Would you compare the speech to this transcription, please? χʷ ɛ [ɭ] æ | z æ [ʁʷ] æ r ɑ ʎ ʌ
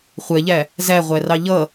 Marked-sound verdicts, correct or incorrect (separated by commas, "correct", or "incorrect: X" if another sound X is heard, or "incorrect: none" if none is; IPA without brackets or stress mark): incorrect: ʎ, correct